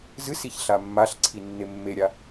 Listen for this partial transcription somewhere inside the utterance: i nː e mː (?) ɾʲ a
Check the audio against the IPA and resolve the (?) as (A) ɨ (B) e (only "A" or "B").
B